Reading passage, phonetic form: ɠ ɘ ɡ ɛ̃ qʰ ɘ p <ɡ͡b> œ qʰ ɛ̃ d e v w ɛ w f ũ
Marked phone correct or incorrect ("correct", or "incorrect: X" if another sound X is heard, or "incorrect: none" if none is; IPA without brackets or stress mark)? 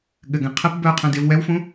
incorrect: b